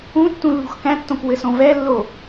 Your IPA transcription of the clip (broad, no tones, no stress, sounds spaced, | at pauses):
ũ tː ũ lː ṳ x k æ̃ tː õ k w ɘ s õ v ɛ lː o